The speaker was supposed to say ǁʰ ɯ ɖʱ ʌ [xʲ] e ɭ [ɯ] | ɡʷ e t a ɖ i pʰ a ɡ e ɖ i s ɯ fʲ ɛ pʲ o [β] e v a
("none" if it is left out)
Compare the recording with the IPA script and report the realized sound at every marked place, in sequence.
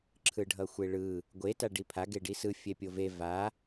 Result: xʷ, ɯ, v

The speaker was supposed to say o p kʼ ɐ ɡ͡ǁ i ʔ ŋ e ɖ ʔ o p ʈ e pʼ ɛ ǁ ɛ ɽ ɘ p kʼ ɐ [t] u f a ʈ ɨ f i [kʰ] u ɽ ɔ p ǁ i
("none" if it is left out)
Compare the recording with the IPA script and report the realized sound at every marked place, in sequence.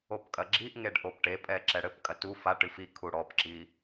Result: t, kʰ

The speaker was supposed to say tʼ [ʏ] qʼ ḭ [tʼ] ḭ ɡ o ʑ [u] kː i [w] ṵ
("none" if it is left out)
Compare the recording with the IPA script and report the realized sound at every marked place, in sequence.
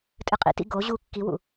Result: ɨ, t, u, w

